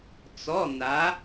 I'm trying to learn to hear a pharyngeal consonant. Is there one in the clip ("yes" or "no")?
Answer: no